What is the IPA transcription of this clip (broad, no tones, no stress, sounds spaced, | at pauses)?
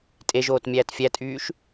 tʼ e ʒ oː t mʲ æː t fʲ æ tʼ yː ʃ